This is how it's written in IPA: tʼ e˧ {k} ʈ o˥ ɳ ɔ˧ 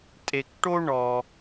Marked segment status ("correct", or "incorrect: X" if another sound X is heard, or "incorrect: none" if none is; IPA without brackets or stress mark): correct